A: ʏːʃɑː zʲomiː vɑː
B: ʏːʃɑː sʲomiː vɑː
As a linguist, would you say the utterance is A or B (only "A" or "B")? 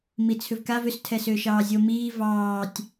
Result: A